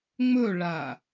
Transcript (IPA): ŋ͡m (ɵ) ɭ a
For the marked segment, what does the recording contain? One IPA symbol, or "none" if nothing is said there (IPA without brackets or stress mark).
ɵ